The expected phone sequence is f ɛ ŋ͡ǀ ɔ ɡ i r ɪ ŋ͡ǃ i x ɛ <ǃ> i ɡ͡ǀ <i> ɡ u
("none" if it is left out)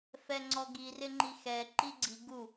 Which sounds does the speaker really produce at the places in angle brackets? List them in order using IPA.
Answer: ǃ, i

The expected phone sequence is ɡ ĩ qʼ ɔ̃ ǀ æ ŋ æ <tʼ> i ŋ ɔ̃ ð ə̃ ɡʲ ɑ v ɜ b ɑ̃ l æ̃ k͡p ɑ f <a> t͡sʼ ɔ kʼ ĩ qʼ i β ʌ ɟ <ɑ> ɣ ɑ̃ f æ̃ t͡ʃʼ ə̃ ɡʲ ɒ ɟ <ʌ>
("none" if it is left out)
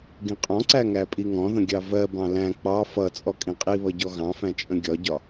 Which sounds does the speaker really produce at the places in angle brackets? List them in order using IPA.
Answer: pʼ, ʌ, ɔ, ɒ

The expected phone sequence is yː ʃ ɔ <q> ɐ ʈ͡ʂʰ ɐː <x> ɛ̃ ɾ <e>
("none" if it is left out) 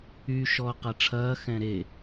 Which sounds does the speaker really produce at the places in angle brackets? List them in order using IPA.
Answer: q, x, e

